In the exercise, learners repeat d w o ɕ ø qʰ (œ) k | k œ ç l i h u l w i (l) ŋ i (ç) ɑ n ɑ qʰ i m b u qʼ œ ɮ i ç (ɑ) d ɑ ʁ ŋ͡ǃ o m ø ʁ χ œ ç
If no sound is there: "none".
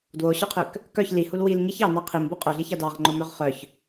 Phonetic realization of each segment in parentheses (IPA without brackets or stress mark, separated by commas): ø, l, ç, ɑ